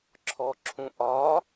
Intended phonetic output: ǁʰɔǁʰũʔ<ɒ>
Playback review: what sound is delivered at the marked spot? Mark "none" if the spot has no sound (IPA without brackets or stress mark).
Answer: ɒ